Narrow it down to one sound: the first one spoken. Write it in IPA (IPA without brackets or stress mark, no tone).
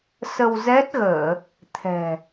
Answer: s